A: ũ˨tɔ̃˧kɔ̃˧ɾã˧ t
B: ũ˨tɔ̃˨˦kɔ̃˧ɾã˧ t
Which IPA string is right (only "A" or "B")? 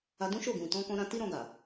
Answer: A